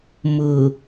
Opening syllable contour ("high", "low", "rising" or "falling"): low